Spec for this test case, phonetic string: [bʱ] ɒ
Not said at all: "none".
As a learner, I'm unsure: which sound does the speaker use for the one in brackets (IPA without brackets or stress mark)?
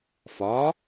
f